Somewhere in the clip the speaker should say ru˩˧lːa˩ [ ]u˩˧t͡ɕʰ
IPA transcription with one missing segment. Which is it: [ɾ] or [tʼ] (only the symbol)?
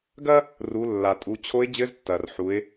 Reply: tʼ